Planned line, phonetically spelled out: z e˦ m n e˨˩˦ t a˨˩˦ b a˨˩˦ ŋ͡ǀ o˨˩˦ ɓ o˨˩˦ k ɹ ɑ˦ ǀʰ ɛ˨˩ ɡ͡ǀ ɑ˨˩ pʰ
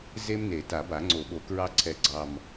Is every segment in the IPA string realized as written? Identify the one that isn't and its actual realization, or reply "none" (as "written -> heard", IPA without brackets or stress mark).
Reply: pʰ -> m